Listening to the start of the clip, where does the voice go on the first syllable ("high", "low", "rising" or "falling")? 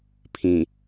low